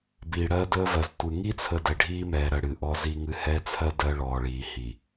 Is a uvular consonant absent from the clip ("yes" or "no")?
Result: yes